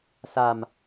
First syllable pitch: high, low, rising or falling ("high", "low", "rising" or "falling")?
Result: low